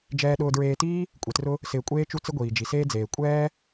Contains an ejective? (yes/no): yes